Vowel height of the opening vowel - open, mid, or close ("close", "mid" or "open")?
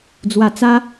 open